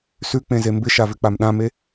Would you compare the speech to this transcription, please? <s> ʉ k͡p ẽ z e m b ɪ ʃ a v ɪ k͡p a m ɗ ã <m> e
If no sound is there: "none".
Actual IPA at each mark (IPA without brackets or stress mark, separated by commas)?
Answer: s, m